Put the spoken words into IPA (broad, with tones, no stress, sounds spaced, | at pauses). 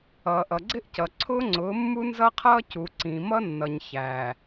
ʌː˨ ʔ ʌ˨ ɡ͡ǀ ɪ˦ ʔ c ʌ˨ ǀʰ ʊː˦ ŋ͡ǀ ʊː˨˦ mː u˦ n z ʌ˦ qʰ ʌː˦ c u˨ ǀ ĩ˨ m ʌ˦ nː ʌ˨ ɲ ç æ˨